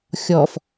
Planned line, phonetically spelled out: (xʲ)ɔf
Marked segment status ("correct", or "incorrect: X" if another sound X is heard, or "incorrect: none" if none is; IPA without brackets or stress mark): correct